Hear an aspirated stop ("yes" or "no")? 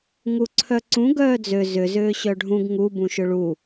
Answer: yes